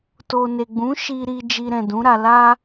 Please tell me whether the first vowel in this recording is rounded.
yes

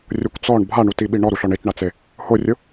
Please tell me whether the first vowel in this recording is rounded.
yes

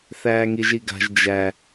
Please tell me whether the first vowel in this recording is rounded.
no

